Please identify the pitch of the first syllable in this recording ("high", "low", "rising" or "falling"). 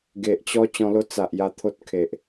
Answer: low